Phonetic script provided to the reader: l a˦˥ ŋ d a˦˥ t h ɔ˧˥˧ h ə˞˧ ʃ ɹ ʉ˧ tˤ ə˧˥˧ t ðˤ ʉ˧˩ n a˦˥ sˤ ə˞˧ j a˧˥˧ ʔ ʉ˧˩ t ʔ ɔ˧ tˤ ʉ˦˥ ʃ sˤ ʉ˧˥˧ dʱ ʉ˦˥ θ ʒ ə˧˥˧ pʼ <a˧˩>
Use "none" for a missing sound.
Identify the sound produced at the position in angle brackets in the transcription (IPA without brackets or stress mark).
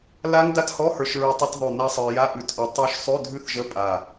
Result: a˧˩